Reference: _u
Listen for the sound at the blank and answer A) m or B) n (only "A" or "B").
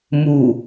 A